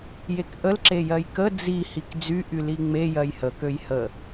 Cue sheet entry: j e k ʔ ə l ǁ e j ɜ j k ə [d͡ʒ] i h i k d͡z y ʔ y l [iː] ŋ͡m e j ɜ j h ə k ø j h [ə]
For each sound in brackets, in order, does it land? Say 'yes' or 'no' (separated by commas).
no, no, yes